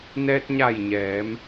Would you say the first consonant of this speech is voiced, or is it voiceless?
voiced